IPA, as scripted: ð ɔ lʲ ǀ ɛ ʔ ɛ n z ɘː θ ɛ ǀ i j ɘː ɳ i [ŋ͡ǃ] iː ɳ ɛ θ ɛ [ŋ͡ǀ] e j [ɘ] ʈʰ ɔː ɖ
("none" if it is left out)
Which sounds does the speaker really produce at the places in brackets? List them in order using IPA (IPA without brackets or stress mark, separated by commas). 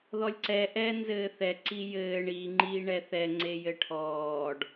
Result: ŋ͡ǃ, ŋ͡ǀ, ɘ